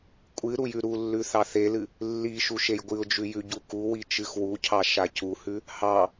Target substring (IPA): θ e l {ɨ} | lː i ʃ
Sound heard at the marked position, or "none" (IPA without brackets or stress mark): ɨ